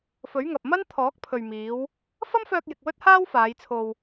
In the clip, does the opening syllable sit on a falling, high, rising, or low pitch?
rising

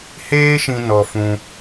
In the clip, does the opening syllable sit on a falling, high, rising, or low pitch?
high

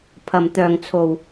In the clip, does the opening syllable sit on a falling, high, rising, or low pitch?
low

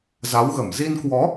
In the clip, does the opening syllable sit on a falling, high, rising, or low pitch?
rising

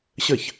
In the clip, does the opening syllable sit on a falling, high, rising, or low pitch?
falling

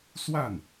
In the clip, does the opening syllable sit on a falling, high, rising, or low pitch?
falling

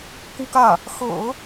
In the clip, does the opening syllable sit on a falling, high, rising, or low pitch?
high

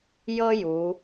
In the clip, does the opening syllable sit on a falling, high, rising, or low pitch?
high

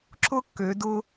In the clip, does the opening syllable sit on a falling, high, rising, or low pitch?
high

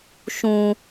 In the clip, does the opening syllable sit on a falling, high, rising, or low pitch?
high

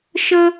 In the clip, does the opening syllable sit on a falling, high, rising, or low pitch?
high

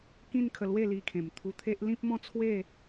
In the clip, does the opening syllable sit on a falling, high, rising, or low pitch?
falling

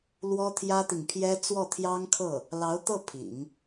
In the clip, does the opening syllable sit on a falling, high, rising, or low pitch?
high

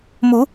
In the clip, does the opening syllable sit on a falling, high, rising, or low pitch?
rising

